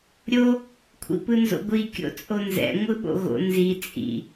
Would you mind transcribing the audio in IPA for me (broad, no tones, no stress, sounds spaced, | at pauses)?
ɾʲ o | kʷʰ ḭ p ɯ n z o̰ ɡʷ i kʲ o̰ t͡sʼ o n z ɛ̰ ŋʷ ɯ ɓ o̰ ɣ o̰ n z i t͡sʼ ḭ